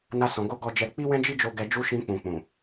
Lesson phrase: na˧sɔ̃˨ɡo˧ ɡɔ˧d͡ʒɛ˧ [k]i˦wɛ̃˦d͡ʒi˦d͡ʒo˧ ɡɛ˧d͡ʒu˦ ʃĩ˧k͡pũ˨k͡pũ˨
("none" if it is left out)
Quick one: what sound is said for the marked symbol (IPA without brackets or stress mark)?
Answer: k͡p